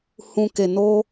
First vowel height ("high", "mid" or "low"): high